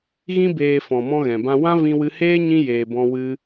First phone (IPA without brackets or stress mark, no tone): ɣ